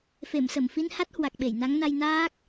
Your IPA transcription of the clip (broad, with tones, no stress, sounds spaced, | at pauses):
f e˧˩ m s ə˧˩ m f i˧ n h a˦˥ t̚ h w a˨˩ k̚ ɓ e˧˩ j n a˨˦ ŋ n a˧ j n aː˦˥ k̚